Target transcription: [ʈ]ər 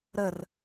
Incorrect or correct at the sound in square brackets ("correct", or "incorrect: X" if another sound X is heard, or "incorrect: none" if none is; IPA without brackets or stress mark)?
incorrect: ɾ